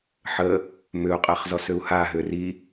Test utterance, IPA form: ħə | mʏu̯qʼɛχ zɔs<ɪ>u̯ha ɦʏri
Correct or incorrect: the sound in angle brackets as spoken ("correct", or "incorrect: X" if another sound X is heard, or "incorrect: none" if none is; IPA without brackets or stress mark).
incorrect: ʏ